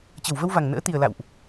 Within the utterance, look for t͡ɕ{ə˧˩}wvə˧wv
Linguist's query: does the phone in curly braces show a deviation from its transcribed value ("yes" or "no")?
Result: no